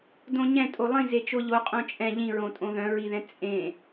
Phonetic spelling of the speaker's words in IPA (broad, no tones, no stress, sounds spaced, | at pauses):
d õ ɲ ɛ̃ tʼ o lˠ ĩ z e t͡ʃ o ʎ o qʼ õ t͡ʃʼ ɛ̃ ʎ ĩ ɹ õ tʼ õ ð œ̃ ɹ i ð ɛ̃ t͡sʼ ẽ